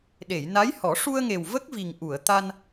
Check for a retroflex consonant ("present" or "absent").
present